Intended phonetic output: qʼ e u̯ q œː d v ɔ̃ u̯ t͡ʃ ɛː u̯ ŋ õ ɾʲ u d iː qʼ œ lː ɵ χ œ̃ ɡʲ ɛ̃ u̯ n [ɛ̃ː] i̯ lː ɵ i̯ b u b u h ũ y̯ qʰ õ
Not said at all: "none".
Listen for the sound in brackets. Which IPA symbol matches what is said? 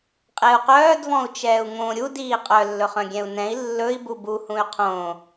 ɛ̃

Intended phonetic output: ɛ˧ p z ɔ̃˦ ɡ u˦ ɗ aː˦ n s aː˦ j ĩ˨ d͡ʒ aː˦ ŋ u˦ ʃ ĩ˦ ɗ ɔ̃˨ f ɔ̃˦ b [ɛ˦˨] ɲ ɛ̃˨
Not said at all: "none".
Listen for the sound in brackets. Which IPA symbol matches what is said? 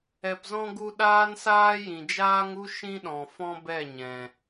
ɛ˦˨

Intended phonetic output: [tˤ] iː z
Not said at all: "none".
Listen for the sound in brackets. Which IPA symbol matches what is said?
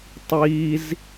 tˤ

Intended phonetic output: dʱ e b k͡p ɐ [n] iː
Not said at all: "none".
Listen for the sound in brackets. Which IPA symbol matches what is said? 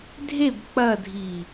dʱ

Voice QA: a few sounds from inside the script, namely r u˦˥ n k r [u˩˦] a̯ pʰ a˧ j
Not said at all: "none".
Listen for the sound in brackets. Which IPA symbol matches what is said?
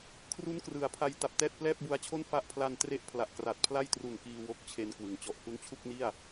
ɯ˩˦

